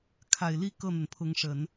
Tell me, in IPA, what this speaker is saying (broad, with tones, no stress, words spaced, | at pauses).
kʰa˨˩ɪ̯li˥˧ kɤ˥˩n̪ə˩npʰʊ˧˥ŋ ʂə˨˩˦n